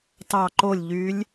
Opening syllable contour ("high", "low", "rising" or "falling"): falling